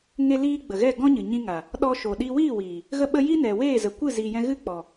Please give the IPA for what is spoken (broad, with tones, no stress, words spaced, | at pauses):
ŋe˧liː˧ ɡ͡bə˨ɣɛ˦˨ ɡɔ̃˦ɲɨ˨ ɲĩ˧ŋa˨ | ɗɔ˧ʃo˨ɗi˧ wiː˦˨wiː˨ | ɣə˦ɓə˦ ji˦nɛ˨weː˦˨ zə˨kʷɨ˦˨ zi˨jɛ̃˧ɣɨ˦ k͡pɔ˨